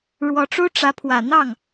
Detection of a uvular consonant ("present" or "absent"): absent